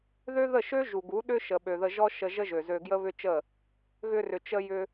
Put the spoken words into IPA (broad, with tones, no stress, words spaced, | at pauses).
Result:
ðø˦ðə˦˨ʃø˦ ʒu˨ɡu˨˦ɗʏ˦ʃə˨ ɓø˨ðə˧ʒɔ˦ ʃə˧ ʒə˦ʒø˨zø˧ɡjə˦ βʏ˦t͡ʃə˦˨ | ɣʏ˧rʏ˨t͡ʃə˧jʏ˧